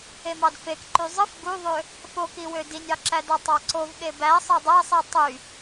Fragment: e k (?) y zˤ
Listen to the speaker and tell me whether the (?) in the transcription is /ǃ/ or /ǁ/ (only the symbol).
ǃ